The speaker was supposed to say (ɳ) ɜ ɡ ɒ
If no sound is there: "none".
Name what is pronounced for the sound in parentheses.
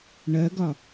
ɳ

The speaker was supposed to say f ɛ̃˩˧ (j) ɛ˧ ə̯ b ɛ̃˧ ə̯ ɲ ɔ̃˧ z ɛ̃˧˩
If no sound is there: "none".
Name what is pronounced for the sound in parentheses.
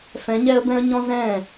ɲ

